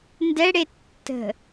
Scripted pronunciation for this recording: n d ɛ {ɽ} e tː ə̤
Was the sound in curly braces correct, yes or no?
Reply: yes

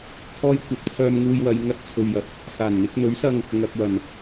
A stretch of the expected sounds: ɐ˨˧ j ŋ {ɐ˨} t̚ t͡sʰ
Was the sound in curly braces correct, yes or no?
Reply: no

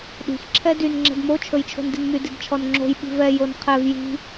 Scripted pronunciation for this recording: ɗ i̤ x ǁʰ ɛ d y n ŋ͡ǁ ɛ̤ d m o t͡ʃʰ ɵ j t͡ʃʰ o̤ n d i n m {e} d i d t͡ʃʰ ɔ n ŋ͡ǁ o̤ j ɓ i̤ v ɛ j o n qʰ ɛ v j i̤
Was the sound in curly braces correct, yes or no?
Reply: no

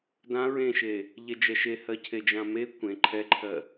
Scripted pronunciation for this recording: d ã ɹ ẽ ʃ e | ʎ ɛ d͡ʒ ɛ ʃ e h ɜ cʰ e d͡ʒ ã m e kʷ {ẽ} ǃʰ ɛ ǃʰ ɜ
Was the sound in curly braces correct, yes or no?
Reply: yes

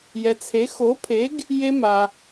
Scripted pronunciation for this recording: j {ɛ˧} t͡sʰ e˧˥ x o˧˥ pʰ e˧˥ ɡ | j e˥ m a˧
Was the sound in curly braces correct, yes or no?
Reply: yes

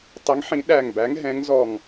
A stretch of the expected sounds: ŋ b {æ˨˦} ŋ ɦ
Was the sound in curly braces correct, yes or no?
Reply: yes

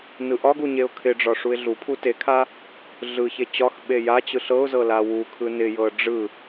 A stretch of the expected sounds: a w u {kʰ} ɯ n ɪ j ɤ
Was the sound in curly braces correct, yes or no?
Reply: yes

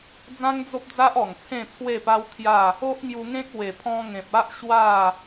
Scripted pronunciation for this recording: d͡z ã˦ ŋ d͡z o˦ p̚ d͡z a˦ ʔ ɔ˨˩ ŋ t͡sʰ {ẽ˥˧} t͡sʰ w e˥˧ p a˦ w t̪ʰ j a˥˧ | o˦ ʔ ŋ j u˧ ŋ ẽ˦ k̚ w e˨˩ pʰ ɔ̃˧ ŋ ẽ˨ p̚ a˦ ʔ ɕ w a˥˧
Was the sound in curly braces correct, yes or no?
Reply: yes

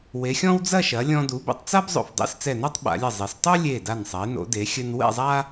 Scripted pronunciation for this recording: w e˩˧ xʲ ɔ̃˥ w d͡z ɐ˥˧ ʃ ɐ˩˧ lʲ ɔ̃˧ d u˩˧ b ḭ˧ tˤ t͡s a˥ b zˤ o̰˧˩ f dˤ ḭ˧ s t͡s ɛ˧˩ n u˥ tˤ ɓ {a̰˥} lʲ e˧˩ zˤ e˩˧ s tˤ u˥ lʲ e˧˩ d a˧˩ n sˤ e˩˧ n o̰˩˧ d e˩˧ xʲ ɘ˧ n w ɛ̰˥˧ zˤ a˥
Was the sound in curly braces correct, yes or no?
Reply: no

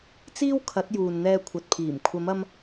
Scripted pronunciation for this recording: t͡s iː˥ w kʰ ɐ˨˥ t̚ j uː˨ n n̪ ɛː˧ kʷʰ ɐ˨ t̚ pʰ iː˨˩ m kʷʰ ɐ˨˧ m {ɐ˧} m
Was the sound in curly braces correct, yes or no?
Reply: yes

